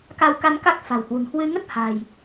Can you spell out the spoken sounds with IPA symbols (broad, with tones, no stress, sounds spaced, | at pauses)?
k a˧ w k a˧ n k a˦˥ k̚ f a̤˨˩ w h w ṳ˨˩ n h w ɨ˧ ŋ ə˦˥ t̚ h a̤˨˩ j